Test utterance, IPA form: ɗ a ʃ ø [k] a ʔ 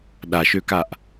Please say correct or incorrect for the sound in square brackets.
correct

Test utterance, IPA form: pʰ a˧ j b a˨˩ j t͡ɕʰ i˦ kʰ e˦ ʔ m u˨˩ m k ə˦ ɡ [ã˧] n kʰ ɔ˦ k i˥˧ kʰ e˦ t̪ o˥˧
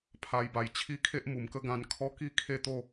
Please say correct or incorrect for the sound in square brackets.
correct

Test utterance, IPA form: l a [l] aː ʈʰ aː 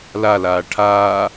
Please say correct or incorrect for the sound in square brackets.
correct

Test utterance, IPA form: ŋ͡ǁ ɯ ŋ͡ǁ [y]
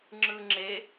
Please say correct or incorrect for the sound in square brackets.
incorrect: e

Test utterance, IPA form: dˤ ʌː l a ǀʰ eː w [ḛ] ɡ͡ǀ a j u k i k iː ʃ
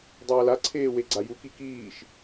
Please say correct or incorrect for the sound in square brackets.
incorrect: e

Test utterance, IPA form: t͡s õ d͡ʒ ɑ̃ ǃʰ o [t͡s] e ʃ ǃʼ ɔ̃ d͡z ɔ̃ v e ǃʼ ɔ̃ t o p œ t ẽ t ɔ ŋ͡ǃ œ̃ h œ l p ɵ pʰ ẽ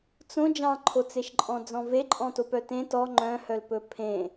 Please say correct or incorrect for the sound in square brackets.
correct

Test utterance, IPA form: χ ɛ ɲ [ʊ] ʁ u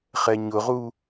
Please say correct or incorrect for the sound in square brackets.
correct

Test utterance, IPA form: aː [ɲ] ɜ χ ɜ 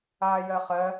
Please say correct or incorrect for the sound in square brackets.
incorrect: j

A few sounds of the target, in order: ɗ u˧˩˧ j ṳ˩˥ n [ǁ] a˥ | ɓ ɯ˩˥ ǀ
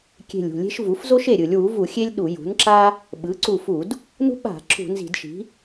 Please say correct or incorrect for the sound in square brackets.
correct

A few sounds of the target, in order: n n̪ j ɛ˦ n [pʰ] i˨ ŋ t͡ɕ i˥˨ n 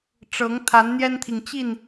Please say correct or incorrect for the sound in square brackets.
incorrect: t̪ʰ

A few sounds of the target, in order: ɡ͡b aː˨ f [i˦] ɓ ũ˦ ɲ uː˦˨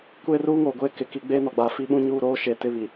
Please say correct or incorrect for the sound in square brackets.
correct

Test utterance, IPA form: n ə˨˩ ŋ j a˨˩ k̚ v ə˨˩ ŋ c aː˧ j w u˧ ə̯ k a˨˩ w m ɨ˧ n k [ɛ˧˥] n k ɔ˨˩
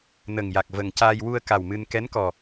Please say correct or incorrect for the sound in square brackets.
correct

